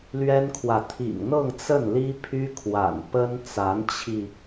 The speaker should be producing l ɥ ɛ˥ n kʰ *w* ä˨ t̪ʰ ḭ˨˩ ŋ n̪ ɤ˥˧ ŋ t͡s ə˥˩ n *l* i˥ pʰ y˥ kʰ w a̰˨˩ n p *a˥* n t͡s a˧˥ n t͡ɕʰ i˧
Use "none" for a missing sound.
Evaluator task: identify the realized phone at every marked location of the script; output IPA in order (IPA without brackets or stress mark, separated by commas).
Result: w, l, ə˥